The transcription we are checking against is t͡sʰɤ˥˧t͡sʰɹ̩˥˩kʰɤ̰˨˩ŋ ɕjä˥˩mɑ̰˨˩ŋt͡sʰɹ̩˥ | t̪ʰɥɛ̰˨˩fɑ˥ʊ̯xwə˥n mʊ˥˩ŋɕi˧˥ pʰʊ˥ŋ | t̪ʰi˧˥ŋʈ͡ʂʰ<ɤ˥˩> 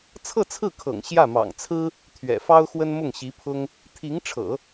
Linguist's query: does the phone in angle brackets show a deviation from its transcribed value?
yes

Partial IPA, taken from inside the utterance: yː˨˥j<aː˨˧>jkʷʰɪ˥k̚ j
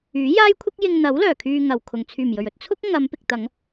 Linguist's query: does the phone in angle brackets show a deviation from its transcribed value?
yes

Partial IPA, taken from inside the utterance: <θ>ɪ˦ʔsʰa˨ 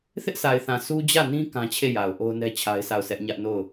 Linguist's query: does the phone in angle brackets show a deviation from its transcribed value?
no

